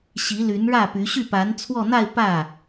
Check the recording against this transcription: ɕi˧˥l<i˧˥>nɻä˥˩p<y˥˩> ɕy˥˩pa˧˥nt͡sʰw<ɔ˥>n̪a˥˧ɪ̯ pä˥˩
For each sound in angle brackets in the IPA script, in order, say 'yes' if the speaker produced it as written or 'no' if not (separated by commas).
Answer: no, no, no